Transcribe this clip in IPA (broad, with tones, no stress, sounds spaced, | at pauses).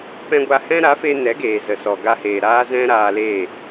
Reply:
p ɛ̃˦ ɡʷ a˧ h ɛ̃˦ ɾ a˨˦ f e˧ n ɛ˨˦ ɡ eː˨ z ə˨ s ɔ˨ ɡ a˧ h eː˨ ɾ aː˦ z ɛ̃˦ ɾ aː˧ l e˦˨